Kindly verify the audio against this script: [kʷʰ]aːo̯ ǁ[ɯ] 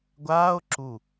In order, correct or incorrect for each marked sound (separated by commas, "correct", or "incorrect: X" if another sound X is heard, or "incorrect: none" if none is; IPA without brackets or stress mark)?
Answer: incorrect: ɡʷ, incorrect: u